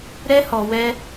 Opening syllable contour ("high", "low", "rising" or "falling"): high